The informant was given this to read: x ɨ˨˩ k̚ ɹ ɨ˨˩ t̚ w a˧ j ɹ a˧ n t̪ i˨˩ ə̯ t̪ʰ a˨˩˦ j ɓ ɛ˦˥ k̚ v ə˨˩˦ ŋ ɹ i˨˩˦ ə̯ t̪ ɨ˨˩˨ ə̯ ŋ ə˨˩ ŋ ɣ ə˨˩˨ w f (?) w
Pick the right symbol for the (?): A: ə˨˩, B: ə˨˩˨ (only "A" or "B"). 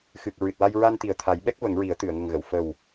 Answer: A